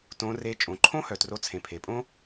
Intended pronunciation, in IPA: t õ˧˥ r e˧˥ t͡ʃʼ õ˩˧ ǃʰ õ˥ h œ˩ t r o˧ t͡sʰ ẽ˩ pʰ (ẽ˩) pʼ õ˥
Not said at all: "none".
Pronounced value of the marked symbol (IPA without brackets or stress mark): e˩